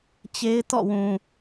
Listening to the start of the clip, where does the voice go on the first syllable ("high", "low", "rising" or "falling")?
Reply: high